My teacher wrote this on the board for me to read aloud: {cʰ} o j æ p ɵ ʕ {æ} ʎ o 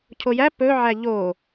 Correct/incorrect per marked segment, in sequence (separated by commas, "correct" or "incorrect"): correct, correct